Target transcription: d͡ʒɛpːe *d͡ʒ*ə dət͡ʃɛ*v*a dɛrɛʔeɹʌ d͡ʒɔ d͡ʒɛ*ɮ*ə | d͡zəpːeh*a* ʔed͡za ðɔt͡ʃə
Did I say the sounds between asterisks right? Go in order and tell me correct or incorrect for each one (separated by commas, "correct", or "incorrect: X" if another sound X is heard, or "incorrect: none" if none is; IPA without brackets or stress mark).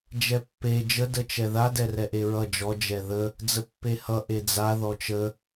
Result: correct, incorrect: ð, incorrect: ð, incorrect: ʌ